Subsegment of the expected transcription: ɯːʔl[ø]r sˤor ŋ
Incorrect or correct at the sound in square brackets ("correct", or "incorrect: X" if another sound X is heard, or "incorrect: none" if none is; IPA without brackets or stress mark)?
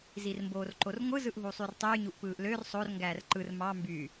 correct